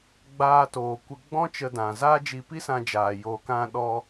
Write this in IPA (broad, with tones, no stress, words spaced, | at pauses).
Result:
ɡ͡baː˧toː˨ kʷə˧ɡ͡bɔ̃˦ t͡ʃə˧dã˨zaː˦ d͡ʒi˧pi˦sã˧d͡ʒaː˨ joː˨kã˧ɗɔ˧